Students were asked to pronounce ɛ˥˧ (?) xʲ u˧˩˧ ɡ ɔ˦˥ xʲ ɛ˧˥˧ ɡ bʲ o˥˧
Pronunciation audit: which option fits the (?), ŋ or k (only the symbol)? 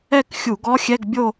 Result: k